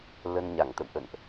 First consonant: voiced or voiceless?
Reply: voiced